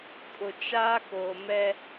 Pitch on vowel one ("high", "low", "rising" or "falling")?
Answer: low